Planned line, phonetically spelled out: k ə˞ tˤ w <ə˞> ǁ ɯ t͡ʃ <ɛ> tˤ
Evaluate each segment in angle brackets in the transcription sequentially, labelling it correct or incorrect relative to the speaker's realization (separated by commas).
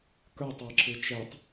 incorrect, correct